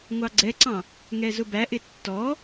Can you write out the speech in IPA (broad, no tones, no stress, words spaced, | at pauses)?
ŋʷɑɡ͡ǀɛǀɑ̃ | ŋɛzʊbæʔɪ tːɔ